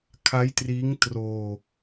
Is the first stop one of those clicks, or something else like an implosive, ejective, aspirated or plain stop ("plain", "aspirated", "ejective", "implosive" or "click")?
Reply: aspirated